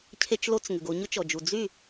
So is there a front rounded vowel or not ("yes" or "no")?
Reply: yes